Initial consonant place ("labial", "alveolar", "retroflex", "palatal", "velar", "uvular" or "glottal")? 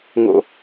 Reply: velar